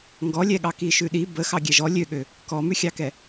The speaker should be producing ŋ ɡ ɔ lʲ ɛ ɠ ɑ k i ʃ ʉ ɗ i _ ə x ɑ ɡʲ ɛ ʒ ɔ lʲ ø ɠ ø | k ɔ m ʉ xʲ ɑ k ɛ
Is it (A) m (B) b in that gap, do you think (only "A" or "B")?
B